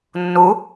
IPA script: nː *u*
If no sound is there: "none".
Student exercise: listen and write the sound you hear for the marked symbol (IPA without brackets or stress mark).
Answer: u